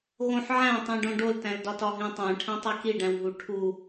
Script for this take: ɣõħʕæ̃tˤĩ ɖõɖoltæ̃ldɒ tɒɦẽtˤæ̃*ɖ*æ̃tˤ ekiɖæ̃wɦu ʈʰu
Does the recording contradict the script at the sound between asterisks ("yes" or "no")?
yes